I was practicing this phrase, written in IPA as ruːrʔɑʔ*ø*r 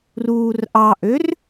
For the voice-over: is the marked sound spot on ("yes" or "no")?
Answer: yes